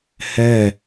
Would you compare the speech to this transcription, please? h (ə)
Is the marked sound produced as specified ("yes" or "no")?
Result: no